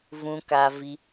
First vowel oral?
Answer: no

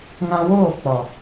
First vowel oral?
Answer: no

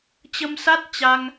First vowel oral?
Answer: yes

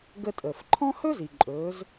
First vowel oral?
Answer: yes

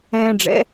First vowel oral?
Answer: no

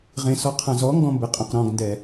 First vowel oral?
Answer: no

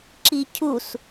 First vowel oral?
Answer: yes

